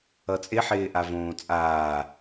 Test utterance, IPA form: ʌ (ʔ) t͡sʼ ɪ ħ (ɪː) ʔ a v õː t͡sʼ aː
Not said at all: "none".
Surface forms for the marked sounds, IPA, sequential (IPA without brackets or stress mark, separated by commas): none, ɪː